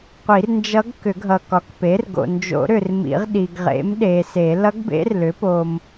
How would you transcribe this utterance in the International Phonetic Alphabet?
qʷ i˨˩˦ r n d͡ʒ ʌ˧˥ ɡ k ʏ˨˩˦ ɡʱ ʌ˨ k ɒ˩˥ k p e˩˥ r ɡ o̰˨ n d͡ʒ o̰˨˩˦ ɾ ʏ˨ r m ḭ˨˩˦ ʁ ɗ i˨ ɡ ʁ ḛ˩˥ m ɗ e˨ s e˨˩˦ l ʌ˧˥ ɡ b ḛ˧˥ r l ʏ˩˥ p o˨ m

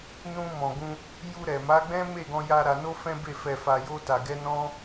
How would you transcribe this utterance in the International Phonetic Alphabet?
n ũ˧ m ɔ̃˨ ɡ ũ˧ | j u˧ ɾ ɛ˨ m a˨˦ ɡ͡b ɛ̃˦ m e˦˨ ɡ ɔ̃˧ j a˧ ɾ a˧ n o˦ f ɛ̃˦ b e˦˨ f ɛ˧ f a˧ j o˦ t a˧ ɡ ɛ˦ n ɔ̃˦

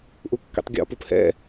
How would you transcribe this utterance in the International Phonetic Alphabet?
ʔ u kː ḭ tˤ ɡʲ ɔ̰ p u p h ɛ̰

